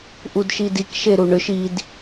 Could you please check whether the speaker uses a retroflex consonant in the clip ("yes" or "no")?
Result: yes